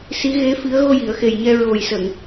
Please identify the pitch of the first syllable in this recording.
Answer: rising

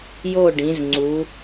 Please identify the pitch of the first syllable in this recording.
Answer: falling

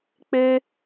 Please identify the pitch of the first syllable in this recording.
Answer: high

